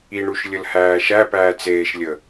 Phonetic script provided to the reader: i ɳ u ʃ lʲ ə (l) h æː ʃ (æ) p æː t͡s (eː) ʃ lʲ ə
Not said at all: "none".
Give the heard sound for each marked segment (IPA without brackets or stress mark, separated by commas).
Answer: l, æ, eː